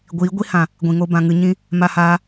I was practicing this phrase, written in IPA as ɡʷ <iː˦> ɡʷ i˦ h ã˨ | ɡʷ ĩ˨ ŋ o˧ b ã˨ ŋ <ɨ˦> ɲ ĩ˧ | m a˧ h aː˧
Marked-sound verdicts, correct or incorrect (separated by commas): incorrect, incorrect